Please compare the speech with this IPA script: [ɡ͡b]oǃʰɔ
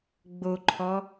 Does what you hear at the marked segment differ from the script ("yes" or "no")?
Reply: no